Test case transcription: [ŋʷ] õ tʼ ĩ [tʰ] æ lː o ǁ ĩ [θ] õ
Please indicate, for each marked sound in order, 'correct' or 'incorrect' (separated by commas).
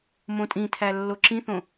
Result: incorrect, correct, correct